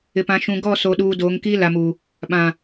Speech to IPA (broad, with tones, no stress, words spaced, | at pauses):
ɪ˨pã˨ʃũ˨ ɡɔ˦˨so˨ɗuː˨ doː˨˦ŋkiː˦ la˨mu˨ | ɓã˨